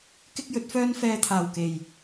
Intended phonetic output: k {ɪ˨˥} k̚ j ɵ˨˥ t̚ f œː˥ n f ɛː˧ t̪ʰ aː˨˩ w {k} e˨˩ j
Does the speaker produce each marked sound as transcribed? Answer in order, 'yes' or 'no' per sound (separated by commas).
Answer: no, yes